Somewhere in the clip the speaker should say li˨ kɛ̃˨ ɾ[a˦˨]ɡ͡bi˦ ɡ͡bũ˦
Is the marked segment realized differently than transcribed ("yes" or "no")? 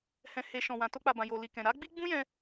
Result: yes